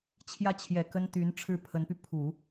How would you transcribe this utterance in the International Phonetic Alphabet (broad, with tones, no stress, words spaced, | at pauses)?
t͡ɕʰjä˥˩t͡ɕʰjɛ˨˩ kə˥nt̪y˧˥n ʈ͡ʂʰɻ̩˥˩pʰə˧˥npy˧ pʰu˨˩˦